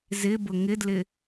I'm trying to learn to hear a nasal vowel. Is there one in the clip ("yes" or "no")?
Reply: no